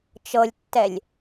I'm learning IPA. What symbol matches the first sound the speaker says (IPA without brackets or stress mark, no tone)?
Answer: t͡ʃ